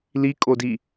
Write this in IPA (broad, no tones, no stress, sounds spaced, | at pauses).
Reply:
l i kʼ o d i